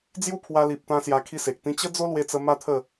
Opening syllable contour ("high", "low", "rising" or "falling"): falling